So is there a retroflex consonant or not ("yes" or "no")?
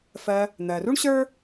yes